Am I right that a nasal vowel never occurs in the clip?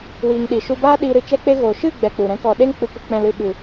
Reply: no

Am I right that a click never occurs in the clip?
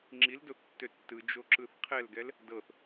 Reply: no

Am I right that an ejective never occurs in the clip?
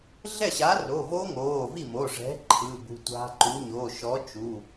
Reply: yes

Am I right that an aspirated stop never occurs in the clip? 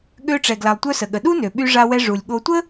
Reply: yes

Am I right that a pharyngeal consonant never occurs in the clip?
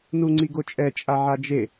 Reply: no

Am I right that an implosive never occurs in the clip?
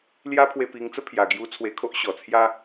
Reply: yes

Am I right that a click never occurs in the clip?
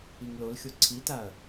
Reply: no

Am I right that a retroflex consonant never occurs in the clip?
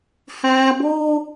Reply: yes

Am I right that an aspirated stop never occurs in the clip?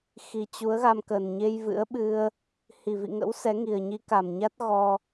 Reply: yes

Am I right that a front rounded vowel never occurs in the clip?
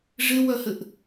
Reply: no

